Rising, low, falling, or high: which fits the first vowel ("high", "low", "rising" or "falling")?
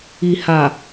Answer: low